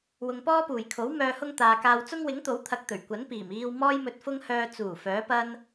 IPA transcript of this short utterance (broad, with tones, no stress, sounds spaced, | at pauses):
w ʊ˨ ŋ p ɔː˥ p uː˨˩ j kʰ o˨˥ w m œː˨ h ʊ˧ ŋ t̪ aː˨ k aː˧ w t͡s ʊ˥ ŋ w ɪ˨˥ ŋ t̪ o˨˥ w t̪ʰ ɐ˧ k̚ t̪ ɵ˨˩ ɥ kʷ ɐ˨˥ n p iː˨˩ m iː˧ w m ɔː˥ j m ɵ˧ t̚ f ʊ˥ ŋ h œː˧ t͡s uː˨˩ f œː˨˥ p ɐ˥ n